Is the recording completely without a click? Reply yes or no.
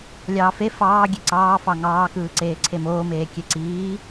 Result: no